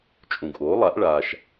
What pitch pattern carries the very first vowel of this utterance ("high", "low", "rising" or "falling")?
low